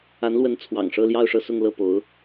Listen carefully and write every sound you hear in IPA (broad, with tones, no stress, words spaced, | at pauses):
a˧˥nlwə˧˥n t͡sʰwɑ̰˨˩ŋʂɤ˥˧ljɑ˥˧ʊ̯ ʂɤ˥˧sʊ˥˧ŋ lɤ˥˩po˧˥ʊ̯